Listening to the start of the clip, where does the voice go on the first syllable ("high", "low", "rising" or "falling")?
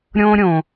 high